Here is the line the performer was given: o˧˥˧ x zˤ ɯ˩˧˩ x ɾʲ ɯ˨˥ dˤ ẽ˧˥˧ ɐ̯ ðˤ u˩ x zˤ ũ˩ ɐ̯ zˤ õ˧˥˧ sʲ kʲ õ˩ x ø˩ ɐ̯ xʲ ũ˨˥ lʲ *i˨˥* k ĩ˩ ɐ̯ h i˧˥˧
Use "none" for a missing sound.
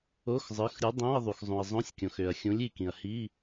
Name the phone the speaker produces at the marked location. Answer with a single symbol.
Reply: i˧˩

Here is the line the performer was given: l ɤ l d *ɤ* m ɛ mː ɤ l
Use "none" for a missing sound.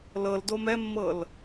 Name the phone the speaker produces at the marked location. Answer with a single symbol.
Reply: o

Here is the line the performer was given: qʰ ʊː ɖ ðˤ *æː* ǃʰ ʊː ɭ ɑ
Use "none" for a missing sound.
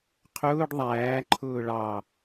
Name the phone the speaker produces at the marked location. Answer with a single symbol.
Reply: æː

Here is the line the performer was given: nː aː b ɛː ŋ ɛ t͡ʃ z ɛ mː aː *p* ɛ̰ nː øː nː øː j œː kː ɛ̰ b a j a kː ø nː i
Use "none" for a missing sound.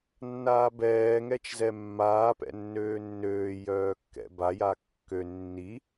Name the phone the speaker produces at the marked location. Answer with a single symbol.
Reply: p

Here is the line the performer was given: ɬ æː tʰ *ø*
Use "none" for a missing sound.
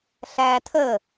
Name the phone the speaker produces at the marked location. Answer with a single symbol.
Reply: ə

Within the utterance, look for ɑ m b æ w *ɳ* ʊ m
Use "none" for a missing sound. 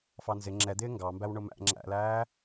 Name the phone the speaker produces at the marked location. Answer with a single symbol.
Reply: ɳ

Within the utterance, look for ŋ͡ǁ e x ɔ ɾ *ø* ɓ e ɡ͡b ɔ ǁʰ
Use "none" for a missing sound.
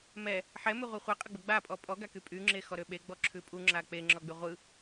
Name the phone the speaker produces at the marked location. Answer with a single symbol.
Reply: ø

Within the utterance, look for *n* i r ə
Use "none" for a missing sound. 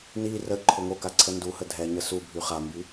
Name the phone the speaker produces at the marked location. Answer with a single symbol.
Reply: n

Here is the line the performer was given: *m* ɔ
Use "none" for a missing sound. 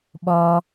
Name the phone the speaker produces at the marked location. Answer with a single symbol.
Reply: ɓ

